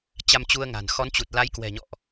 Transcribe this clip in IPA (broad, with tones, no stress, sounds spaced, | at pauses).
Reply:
t͡ɕ a˧ m t͡ɕ u˧ ə̯ ŋ a̤˨˩ n x ɔ˨˦ n t͡ɕ u˨˩ t̚ l a˨˦ j k w ɛ̤˨˩ ɲ ɔ̰˧˨ ʔ